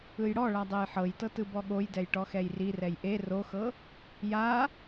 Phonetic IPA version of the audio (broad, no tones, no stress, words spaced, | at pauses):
ɯjɽɔɭa dˤejħɤjtɤ tɯbɔɠojdɛj ʈɔxɛjrirɛj ʔe roxɤ | ja